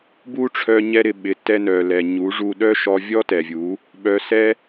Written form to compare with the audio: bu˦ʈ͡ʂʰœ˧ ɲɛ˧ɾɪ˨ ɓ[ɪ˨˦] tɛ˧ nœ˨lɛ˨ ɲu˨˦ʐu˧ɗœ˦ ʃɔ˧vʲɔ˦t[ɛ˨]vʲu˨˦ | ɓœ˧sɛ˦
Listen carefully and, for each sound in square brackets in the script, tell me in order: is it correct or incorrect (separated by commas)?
correct, correct